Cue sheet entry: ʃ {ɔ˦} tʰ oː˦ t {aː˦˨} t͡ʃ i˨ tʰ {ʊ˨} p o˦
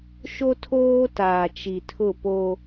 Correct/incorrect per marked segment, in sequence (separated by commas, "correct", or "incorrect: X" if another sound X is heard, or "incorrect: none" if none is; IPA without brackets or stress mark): incorrect: o˦, incorrect: aː˨, incorrect: ʊ˦˨